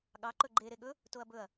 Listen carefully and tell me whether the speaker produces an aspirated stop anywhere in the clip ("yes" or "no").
no